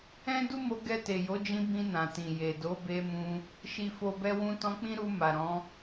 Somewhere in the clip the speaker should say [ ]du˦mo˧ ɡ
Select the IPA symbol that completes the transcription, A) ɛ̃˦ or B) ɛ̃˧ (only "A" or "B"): A